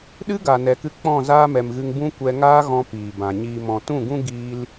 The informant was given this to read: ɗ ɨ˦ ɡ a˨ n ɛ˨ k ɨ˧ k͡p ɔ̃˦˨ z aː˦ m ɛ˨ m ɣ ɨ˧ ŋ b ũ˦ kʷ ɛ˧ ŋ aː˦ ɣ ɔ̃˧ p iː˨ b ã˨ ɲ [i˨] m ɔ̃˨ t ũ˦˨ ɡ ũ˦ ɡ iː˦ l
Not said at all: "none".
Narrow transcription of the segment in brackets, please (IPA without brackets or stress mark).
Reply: iː˨